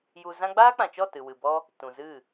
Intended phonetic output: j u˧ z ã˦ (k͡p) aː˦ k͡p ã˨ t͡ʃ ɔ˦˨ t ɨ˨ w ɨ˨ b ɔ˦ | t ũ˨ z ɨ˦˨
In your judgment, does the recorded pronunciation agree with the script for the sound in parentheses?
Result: no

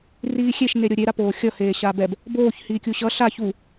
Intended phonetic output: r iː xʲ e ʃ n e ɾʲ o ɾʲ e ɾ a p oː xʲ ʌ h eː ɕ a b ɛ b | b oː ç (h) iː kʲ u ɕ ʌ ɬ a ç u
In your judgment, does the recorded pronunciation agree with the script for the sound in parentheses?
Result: yes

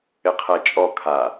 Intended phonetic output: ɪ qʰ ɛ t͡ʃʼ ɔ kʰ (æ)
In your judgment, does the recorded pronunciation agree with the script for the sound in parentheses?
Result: no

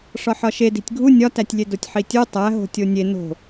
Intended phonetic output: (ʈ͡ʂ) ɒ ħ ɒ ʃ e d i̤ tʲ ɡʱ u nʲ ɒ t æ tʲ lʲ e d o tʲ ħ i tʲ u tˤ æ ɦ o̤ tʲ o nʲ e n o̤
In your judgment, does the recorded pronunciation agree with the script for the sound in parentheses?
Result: no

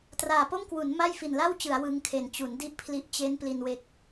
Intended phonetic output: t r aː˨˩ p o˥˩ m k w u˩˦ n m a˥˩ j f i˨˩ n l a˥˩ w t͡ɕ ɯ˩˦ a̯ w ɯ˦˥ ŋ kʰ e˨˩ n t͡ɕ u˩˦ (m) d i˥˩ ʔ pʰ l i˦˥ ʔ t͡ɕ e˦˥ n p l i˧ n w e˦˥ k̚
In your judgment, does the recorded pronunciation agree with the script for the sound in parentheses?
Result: no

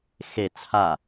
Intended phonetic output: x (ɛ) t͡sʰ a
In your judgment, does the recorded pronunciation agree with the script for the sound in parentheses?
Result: no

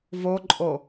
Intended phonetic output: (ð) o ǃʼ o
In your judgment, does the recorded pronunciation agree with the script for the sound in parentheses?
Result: no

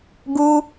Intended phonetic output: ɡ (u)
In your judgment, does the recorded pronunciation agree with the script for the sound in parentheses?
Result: yes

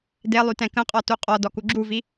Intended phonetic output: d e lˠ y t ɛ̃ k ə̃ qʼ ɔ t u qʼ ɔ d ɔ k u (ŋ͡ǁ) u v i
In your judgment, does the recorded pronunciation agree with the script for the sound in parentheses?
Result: no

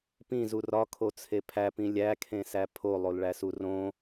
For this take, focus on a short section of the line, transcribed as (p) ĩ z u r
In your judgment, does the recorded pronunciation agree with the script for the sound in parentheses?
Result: yes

